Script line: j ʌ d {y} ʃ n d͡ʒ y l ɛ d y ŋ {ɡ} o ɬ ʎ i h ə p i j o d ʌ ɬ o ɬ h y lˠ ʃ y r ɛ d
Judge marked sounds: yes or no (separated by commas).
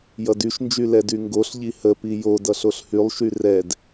yes, yes